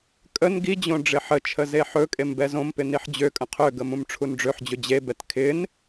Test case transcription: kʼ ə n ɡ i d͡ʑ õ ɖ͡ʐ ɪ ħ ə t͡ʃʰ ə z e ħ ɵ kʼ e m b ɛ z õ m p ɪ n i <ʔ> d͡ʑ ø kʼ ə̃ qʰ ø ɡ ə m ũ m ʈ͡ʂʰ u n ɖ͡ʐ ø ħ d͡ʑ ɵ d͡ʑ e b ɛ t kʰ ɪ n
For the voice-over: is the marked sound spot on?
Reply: no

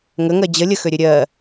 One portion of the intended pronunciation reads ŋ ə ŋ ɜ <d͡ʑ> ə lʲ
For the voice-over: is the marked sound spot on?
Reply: yes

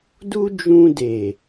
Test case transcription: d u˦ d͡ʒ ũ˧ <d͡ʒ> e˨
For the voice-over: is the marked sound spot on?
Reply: no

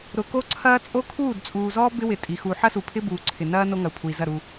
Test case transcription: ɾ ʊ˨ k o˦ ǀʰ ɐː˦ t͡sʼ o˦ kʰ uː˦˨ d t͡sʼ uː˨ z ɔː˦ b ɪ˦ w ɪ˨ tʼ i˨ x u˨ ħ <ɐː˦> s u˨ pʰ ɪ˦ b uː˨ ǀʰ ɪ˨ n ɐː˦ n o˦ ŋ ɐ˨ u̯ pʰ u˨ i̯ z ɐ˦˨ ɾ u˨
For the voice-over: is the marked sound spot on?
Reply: no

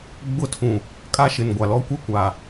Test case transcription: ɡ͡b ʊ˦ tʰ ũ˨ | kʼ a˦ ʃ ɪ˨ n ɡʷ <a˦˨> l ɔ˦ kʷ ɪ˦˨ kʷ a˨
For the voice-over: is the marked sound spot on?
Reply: no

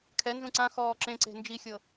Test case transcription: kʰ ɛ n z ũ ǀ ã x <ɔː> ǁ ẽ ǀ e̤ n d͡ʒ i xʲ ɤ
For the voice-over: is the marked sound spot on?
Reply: yes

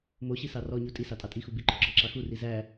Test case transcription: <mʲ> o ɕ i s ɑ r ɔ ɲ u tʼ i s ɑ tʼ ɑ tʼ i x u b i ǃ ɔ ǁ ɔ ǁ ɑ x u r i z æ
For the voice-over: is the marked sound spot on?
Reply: no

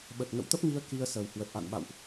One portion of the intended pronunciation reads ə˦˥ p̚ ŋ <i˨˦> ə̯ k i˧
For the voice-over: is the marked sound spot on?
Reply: no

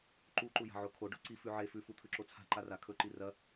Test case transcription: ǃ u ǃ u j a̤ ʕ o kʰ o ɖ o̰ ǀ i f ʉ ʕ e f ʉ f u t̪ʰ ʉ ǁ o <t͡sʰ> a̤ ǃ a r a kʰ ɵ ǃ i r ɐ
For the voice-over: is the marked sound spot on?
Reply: yes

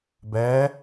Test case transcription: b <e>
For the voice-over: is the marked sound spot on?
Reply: no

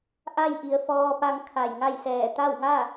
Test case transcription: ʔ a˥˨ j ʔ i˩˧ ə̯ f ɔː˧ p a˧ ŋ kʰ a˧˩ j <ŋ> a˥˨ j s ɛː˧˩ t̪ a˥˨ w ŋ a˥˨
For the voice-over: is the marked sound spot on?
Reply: yes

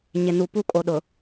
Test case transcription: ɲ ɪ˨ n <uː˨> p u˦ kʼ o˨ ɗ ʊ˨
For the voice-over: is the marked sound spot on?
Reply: no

